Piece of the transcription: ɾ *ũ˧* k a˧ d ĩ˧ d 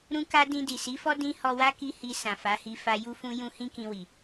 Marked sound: correct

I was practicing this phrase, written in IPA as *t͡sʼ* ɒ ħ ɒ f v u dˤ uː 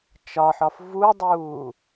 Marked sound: incorrect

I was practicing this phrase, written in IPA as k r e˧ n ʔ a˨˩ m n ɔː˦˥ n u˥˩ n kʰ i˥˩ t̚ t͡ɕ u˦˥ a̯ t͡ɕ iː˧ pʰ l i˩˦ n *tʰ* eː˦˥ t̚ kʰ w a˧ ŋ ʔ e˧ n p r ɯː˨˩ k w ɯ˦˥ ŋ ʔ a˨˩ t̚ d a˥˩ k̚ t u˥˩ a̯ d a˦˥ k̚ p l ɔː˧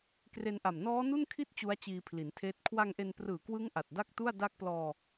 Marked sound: correct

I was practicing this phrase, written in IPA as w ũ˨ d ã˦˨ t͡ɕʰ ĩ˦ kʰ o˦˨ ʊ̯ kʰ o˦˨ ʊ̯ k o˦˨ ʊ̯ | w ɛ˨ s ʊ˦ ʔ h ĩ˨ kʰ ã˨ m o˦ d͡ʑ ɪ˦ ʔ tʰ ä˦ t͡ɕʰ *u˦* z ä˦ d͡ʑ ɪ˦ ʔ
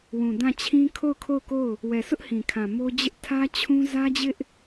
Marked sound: incorrect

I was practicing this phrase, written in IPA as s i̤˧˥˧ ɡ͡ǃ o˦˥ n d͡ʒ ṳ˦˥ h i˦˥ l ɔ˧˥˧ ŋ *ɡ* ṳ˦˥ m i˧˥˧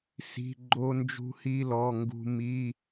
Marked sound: correct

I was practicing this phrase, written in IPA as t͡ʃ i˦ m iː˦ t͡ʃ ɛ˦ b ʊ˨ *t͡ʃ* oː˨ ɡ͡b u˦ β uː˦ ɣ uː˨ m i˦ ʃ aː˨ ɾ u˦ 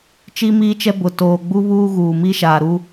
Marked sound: incorrect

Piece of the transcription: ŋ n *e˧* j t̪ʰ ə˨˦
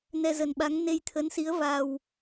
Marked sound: correct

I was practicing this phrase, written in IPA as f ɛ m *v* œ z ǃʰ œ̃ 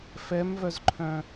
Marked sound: correct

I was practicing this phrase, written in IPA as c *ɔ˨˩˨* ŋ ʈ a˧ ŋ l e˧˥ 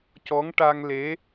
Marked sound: incorrect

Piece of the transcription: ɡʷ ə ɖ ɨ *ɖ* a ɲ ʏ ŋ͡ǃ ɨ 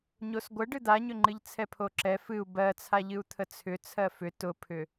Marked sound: incorrect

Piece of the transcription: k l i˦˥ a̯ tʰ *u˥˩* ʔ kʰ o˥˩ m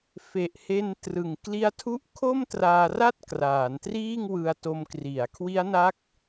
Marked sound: correct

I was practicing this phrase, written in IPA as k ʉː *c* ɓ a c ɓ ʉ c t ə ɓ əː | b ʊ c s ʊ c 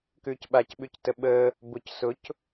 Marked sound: correct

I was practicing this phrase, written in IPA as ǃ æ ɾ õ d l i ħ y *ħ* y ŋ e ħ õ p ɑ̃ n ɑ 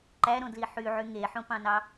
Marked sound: incorrect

